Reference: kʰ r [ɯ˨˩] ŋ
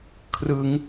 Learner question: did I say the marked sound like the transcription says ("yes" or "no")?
no